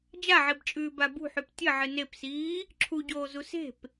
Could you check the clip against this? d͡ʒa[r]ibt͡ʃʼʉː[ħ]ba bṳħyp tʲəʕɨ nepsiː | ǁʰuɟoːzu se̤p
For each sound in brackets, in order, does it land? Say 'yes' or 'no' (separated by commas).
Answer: no, no